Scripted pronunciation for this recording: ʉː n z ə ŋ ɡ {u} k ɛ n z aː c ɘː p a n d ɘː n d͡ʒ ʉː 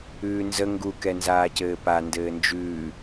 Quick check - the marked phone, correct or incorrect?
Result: correct